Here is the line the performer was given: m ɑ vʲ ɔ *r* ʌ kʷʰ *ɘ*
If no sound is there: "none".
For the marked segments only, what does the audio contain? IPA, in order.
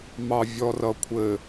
r, ɘ

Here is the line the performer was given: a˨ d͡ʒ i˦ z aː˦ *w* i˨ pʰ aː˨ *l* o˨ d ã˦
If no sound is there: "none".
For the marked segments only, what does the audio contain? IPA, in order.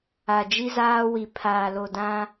w, l

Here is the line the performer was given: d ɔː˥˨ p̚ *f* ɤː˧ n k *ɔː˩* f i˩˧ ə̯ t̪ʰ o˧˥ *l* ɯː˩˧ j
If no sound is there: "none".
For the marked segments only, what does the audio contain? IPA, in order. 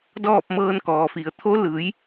m, ɔː˩, l

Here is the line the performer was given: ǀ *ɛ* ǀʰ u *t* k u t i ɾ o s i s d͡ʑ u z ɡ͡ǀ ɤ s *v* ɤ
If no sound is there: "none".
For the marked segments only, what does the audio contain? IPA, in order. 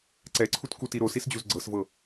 ɛ, t, v

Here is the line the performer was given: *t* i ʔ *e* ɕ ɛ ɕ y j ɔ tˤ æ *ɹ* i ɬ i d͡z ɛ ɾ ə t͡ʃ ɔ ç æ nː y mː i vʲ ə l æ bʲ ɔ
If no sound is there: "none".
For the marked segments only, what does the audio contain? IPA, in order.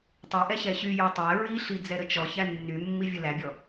tˤ, ɛ, ɹ

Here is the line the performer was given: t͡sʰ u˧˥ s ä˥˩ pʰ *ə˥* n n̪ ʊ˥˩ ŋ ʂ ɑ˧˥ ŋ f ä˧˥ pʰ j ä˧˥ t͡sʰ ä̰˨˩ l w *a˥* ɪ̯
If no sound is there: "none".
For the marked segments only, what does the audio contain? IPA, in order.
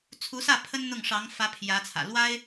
ə˥, a˥

